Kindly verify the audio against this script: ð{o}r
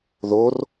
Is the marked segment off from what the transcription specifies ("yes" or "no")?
no